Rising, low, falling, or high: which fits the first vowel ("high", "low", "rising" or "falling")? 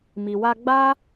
low